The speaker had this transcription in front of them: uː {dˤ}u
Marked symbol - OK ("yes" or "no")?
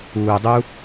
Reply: yes